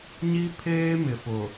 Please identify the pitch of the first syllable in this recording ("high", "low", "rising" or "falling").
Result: high